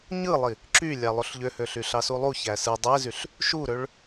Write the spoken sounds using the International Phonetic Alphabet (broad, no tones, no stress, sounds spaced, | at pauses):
ɲ ɯ lˠ i | ǁ y lʲ ɑ lˠ o ɬ ʎ ø h ø ɬ y ɬ ɑ s u lˠ u ç æ s ɯ dˤ e z y ɬ | ʃ u ɾ ø ɭ